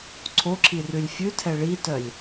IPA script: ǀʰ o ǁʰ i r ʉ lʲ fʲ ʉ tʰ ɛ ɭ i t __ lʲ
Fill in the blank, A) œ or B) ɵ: A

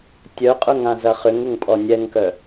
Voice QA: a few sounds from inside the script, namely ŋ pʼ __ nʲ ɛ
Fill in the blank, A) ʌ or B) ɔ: B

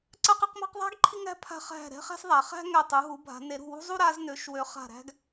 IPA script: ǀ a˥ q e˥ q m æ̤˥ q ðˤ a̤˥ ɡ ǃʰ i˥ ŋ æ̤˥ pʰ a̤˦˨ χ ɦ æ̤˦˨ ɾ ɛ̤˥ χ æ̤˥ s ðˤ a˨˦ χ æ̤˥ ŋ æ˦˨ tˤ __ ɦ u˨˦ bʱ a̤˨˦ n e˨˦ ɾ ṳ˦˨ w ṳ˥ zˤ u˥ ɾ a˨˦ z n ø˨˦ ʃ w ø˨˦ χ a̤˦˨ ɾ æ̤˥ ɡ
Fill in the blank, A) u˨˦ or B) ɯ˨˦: A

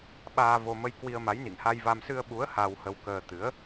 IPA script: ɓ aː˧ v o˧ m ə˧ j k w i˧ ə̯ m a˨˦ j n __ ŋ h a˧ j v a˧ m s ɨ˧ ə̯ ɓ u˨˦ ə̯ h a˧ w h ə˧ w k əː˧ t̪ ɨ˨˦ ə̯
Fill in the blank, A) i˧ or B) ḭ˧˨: B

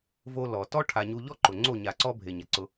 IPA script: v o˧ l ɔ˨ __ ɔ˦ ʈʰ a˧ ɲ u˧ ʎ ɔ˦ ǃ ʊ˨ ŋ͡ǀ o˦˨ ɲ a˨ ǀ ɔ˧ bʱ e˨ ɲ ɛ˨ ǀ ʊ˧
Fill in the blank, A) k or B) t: B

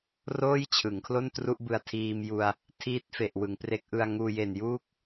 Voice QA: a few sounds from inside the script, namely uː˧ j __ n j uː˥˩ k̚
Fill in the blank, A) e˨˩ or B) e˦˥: A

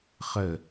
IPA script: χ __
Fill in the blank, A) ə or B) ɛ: A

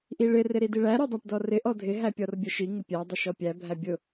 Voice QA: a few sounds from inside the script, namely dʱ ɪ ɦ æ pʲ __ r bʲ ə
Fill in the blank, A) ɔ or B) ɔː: A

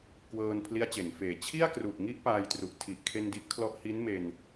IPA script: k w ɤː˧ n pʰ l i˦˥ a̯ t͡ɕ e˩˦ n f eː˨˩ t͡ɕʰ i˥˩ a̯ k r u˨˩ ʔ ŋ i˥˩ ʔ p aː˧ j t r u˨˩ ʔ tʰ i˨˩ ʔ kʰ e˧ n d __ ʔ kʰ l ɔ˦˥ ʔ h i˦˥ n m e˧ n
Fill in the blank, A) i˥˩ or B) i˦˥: B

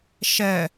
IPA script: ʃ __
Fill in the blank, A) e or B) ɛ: B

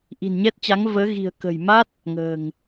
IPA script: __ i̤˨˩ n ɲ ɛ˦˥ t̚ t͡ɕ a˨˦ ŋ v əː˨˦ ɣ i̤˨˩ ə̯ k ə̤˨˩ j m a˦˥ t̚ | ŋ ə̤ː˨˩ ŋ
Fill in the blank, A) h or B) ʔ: B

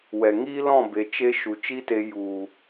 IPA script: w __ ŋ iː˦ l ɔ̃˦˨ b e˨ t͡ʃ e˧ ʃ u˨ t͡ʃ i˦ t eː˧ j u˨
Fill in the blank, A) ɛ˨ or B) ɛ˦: A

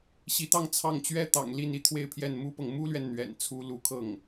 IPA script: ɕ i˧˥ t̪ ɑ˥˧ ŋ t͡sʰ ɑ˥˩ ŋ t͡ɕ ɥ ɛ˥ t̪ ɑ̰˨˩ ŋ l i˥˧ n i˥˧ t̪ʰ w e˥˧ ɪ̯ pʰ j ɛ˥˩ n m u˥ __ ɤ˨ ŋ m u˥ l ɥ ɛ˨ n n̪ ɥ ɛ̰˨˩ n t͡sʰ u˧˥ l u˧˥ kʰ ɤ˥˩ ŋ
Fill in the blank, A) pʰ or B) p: B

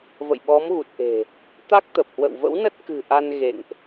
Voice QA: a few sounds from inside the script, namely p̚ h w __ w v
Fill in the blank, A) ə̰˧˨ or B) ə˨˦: A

